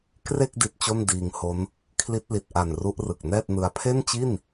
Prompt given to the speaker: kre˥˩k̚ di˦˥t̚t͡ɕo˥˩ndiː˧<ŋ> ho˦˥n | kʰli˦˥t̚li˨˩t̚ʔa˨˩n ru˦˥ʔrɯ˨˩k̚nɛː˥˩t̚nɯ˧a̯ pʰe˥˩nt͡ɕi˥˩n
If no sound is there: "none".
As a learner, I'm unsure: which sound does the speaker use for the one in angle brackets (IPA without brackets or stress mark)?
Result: ŋ